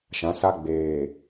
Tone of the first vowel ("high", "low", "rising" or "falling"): rising